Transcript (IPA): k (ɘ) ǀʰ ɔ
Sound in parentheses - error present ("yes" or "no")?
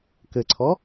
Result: no